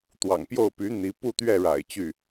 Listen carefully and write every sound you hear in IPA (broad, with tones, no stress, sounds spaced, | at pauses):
t̪ w ɑ̰˨˩ ŋ p j o˥˩ ʊ̯ p y˧˥ n̪ i˧˥ p u˥˧ t̪ ɥ ɛ˥˩ ɻ a̰˨˩ ɪ̯ t͡ɕ y˥˩